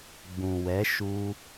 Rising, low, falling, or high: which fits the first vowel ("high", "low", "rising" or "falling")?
low